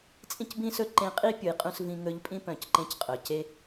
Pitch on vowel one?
high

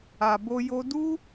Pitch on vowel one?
low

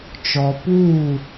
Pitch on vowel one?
low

